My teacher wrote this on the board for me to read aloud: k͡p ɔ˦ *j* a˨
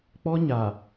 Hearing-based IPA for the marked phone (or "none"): ɲ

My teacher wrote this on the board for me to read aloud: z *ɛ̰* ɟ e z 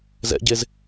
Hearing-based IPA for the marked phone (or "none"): ɛ̰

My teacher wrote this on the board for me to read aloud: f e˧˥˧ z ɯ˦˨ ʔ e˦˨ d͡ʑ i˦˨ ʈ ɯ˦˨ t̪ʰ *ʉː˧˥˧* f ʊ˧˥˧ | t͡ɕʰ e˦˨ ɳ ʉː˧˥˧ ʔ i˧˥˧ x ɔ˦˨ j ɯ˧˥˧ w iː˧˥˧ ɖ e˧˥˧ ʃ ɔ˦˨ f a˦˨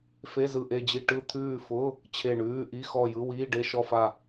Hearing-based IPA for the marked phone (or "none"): ʉː˦˨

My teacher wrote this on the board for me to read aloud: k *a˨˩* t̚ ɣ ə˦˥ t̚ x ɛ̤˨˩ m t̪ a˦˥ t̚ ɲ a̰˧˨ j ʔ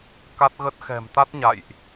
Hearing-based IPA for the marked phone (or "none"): a˦˥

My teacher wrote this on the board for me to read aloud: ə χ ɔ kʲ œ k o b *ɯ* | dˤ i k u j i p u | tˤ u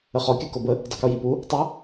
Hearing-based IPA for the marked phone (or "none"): ə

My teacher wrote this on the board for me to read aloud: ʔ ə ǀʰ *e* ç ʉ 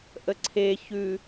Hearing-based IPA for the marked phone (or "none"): e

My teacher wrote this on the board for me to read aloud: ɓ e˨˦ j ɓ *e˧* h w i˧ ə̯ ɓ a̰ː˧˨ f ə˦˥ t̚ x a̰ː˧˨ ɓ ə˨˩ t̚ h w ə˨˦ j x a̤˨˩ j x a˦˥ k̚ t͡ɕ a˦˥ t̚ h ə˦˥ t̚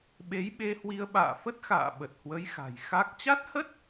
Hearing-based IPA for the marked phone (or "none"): e˧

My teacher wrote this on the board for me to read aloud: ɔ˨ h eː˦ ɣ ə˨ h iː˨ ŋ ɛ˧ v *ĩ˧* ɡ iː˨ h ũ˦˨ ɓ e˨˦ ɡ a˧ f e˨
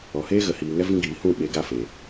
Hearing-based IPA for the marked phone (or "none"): ĩ˧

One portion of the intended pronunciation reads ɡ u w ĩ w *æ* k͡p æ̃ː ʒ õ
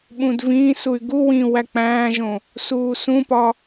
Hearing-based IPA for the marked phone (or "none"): æ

